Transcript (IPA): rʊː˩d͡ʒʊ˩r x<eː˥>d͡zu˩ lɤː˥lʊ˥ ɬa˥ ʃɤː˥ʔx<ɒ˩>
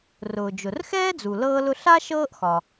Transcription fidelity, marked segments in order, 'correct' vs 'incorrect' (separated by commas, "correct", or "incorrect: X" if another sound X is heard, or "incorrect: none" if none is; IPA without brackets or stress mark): incorrect: ɛː˥, correct